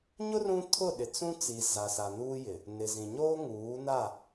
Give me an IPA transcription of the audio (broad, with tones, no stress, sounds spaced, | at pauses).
ɲ ʊ˦ r ũ˦ tʰ ʊ˦˨ ɗ ɪ˨ t͡s ũ˦ t͡s i˨ z a˨ s a˨ n uː˦ j ɪ˨ | n ɪ˨ z ĩ˨ ɲ oː˦ ŋ uː˨˦ n a˦˨